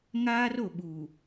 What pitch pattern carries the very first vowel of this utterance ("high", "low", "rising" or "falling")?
high